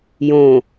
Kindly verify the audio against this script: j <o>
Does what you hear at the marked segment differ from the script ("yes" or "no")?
yes